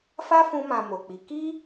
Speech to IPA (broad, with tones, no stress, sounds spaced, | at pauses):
f a˦ f ũ˦ m ã˧ m o˨ k͡p i˨˦ k i˦